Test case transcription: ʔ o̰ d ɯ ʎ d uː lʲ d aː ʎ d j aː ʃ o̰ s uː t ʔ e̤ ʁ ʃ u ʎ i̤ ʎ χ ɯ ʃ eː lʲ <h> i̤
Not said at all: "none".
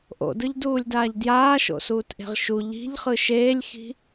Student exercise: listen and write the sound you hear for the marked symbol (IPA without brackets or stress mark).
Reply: x